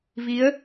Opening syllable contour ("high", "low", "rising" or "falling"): rising